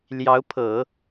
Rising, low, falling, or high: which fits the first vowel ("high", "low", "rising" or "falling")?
rising